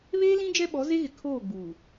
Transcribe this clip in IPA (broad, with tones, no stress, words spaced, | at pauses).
βeː˦lĩ˦ d͡ʒɛ˦ɓɔ˨˦ze˦ɣɪ˨ kʰoː˦˨ɡ͡buː˨